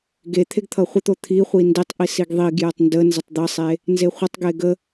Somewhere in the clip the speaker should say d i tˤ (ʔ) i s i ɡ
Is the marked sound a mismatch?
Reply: no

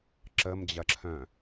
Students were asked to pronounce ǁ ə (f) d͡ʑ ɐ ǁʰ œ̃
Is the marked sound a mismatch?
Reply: yes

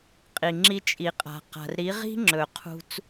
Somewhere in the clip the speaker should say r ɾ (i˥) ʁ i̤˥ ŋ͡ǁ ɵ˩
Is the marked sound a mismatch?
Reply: yes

